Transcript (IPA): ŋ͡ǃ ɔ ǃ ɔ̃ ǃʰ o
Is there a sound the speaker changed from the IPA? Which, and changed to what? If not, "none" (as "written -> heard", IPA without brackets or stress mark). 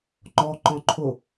none